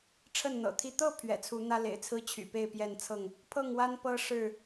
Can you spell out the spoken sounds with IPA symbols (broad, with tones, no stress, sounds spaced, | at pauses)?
ʈ͡ʂʰ ə˥˨ n n̪ ɤ̰˨˩ t̪ʰ i˥˨ t̪ ɤ˥˨ pʰ ɥ ɛ̰˨˩ t͡sʰ u˨˦ n̪ ä˦ l ḛ˨˩ ɪ̯ t͡sʰ ɹ̩˦ t͡ɕʰ y̰˨˩ p e˥˨ ɪ̯ p j ɛ˥˨ n t͡sʰ ɤ˥˨ ŋ | pʰ ɤ˥˨ ŋ w a˦ n p ɤ˦ ʂ ɻ̩˥˨